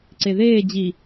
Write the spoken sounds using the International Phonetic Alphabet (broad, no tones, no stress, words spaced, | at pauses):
ǀeðeː d͡ʑi